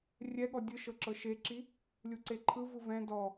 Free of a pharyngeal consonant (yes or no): yes